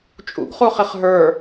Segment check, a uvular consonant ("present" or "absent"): present